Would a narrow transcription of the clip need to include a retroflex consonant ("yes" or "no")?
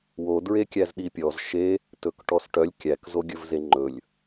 yes